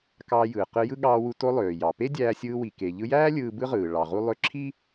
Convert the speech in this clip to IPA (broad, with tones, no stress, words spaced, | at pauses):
kɑː˧jɯː˩ qɯ˧jɯ˥ɠɑː˧wu˧ to˧lˠøː˩jɑ˩pe˥ dʲæː˧sʲɯː˧wi˩ ke˩ʎɯ˧jæː˥ lʲɯː˧bɯ˥ʁɯː˩ ɭɑ˩ʁu˧lˠø˧ ǁʰi˥